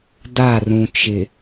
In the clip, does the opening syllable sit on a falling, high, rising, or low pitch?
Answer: falling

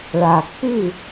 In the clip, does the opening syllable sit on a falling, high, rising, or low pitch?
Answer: low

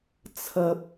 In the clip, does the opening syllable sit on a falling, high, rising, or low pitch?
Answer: low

